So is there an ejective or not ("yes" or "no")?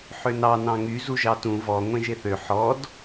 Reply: no